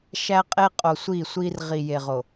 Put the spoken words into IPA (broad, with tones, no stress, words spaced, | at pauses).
ʃæ˦qʼe˦qʼo˨ sʷi˦˨sʷi˦r ʁi˨je˨ʁo˨